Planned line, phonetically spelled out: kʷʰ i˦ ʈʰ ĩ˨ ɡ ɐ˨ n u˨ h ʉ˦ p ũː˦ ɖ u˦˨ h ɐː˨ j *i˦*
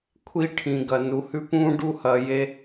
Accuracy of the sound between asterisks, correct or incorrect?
incorrect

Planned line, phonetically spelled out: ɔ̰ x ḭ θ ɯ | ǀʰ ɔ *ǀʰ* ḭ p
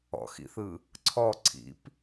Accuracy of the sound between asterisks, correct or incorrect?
correct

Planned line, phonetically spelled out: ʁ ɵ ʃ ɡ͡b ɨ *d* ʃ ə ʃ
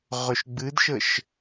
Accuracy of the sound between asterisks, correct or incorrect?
correct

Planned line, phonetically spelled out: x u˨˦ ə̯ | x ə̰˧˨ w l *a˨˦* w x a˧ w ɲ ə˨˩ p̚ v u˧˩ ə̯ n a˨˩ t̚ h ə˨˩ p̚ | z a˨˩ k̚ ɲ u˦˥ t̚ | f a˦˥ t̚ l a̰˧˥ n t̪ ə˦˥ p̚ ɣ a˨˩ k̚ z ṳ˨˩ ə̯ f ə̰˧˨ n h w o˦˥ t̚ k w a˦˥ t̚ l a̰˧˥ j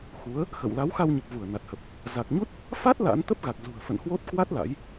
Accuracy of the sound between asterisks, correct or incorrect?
correct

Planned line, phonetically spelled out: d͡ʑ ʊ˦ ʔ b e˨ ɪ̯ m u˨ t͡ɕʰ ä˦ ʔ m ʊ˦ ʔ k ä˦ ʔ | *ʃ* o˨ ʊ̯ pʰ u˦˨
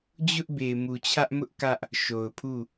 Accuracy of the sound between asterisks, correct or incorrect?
correct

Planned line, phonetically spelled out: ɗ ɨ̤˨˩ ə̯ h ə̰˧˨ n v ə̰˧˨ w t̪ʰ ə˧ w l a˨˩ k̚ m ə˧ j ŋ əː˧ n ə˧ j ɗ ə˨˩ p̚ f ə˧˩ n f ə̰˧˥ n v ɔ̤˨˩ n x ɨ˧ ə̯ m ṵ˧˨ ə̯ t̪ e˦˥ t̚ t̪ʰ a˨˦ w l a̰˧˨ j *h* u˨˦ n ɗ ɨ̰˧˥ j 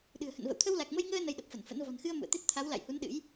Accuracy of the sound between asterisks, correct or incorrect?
correct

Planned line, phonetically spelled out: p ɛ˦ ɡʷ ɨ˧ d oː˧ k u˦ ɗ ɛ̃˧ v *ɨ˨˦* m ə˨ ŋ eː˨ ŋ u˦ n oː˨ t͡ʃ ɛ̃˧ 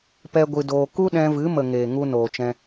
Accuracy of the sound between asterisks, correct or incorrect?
correct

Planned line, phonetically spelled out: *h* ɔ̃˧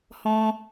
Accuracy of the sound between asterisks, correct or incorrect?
correct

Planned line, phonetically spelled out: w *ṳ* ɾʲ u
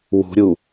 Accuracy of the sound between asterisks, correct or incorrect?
correct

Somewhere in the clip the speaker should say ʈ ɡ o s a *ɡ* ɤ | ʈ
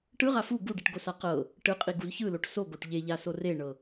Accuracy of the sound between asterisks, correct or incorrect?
incorrect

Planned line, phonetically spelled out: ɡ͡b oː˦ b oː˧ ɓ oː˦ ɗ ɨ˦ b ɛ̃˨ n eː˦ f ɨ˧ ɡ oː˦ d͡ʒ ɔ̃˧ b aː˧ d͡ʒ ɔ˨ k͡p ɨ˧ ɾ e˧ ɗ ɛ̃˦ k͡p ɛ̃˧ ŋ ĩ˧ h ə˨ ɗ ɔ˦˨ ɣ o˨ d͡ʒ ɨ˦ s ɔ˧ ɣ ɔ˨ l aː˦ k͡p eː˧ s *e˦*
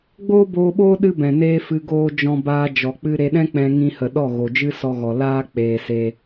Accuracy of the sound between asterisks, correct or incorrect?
correct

